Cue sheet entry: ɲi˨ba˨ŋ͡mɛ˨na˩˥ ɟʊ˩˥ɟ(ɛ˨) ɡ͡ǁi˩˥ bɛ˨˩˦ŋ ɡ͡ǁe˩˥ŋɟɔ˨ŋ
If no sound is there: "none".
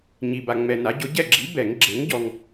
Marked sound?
ɛ˦˨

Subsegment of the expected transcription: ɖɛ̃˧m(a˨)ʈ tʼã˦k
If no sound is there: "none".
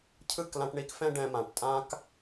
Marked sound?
ã˨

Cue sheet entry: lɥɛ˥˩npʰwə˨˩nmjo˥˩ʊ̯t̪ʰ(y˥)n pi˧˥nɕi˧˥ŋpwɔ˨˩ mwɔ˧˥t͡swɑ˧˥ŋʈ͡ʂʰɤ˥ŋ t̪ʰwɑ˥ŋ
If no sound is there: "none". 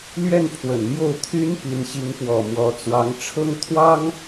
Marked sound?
y˥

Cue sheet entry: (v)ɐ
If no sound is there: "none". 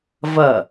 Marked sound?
v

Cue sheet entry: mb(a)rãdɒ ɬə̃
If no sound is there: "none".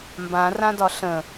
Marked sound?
ã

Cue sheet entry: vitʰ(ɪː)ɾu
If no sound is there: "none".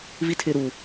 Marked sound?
ɪː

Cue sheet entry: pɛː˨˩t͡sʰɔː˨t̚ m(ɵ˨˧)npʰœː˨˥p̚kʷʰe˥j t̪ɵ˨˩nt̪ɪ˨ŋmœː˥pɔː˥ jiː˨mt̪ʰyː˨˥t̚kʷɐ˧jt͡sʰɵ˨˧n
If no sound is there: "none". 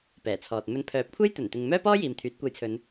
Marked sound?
ɵ˨˧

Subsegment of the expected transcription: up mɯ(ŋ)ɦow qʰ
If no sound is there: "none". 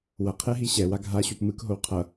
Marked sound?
k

